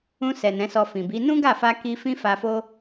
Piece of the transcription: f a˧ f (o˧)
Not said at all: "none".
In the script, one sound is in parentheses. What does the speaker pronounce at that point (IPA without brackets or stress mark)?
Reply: o˦